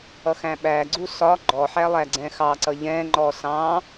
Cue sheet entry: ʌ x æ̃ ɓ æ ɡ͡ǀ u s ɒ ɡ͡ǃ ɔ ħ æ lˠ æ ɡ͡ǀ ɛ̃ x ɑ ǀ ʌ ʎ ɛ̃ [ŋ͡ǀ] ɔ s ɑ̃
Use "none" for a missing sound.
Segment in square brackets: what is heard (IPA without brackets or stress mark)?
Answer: ŋ͡ǃ